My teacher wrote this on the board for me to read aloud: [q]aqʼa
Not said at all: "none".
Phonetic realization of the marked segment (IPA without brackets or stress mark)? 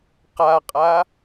q